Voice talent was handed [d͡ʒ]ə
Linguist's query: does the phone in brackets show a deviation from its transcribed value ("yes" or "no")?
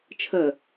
yes